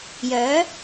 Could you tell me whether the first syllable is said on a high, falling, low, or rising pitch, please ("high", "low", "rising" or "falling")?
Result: rising